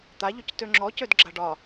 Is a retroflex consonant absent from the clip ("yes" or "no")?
no